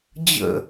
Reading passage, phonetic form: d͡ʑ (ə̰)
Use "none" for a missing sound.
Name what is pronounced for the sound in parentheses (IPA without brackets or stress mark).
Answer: ə̰